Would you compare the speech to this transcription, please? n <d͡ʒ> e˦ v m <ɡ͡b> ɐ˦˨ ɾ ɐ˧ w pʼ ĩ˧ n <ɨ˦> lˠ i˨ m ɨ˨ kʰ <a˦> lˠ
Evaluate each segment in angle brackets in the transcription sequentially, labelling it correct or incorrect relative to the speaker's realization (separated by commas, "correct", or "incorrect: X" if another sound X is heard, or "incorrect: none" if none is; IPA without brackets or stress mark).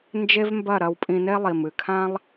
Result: correct, incorrect: b, incorrect: e˦, incorrect: ã˦